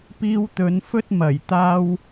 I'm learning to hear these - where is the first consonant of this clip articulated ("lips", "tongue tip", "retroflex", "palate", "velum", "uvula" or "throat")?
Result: lips